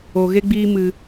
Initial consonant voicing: voiced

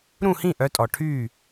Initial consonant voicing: voiced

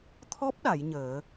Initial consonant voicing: voiceless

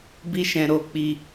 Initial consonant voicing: voiced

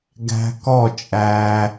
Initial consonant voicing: voiced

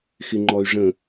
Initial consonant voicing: voiceless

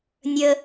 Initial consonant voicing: voiced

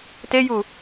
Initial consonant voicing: voiceless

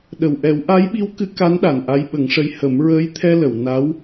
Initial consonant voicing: voiced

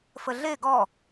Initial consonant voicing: voiceless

